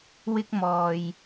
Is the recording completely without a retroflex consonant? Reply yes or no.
yes